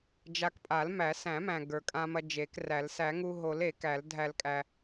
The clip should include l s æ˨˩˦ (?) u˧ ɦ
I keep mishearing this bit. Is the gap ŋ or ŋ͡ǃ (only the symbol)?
ŋ